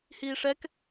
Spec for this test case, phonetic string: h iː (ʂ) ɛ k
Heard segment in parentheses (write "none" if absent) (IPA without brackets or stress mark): ʂ